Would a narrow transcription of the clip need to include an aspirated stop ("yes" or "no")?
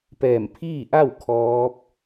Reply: yes